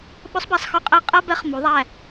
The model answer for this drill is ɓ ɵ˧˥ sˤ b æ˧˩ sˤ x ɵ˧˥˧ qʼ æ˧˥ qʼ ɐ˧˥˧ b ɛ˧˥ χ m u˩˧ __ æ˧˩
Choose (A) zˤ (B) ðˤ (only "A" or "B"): B